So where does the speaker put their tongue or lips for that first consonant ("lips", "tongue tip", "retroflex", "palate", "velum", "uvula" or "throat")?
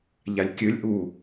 palate